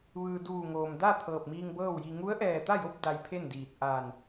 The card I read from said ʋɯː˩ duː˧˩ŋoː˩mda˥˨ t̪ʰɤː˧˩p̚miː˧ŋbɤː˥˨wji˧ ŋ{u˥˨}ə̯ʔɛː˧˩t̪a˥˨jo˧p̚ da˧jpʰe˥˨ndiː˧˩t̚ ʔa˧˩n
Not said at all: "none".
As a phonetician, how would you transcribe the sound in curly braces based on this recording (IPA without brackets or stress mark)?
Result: u˧˥